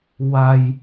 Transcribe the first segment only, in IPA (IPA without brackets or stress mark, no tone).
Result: w